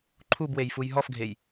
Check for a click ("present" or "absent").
present